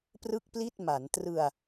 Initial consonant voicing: voiceless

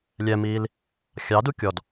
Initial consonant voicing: voiced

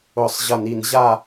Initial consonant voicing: voiceless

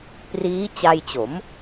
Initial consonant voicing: voiceless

